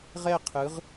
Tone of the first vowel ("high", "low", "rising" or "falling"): falling